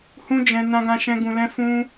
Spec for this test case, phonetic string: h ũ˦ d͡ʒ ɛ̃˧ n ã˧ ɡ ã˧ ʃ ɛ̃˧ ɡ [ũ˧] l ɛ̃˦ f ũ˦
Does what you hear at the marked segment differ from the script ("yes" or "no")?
no